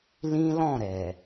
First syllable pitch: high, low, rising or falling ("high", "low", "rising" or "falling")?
high